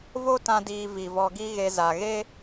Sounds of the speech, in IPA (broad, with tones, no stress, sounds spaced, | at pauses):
v o˦ t ã˧ d iː˨ v i˨ v ɔ˧ ɡ i˦ ɣ e˧ z a˨ ɣ e˦